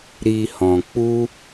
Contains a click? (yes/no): no